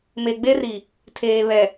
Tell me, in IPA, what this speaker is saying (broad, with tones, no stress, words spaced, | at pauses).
me˨ɡ͡be˦ri˨ | tʰeː˨βɛ˨